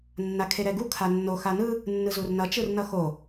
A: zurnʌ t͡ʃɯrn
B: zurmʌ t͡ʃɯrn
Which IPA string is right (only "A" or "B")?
A